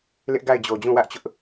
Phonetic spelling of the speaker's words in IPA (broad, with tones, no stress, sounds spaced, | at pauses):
l ɪ˦ ʔ ɡ a˦˨ ɪ̯ d͡ʑ o˨ d͡ʑ ũ˦˨ w ä˦ ʔ t͡ɕ ʊ˦ ʔ